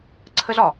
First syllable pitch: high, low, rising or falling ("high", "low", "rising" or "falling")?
high